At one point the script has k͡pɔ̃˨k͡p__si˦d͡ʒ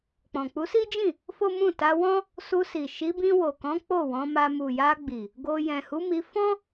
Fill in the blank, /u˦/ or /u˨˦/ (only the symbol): u˨˦